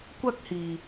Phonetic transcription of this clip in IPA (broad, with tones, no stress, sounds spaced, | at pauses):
kʷ ɐ˥ k̚ h iː˨